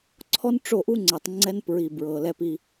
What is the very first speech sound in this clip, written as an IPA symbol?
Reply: ǀʰ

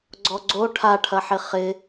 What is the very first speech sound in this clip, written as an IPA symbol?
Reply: ɡ͡ǀ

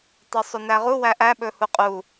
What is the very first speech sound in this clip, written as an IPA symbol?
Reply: tˤ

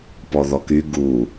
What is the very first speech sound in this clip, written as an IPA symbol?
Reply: p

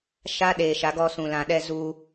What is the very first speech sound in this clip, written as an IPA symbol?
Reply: ʃ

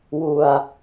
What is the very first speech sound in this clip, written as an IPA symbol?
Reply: w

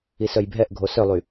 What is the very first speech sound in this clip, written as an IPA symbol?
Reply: i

